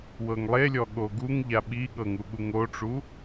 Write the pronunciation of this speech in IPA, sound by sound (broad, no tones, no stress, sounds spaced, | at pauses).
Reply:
w ɤ ŋ lˠ e lʲ ɔ ɠ o ɡ u ŋ ʎ a ɓ i ɠ ɤ ŋ u ɠ u ŋ o ʈ͡ʂ u